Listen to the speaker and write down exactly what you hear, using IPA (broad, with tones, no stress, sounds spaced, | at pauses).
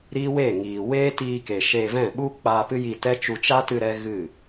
ɾ iː˦ w eː˦˨ ŋ iː˨ w eː˦ t iː˧ k e˨ ʃ eː˧ v ɛ̃˦˨ ɓ u˦ k͡p aː˧ p ɨ˦ j i˧ t ɛ˦ t͡ʃ u˧ t͡ʃ a˦ t ɨ˧ ɾ ɛ˦ ɣ ɨ˦˨